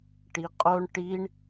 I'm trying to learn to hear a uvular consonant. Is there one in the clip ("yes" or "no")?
yes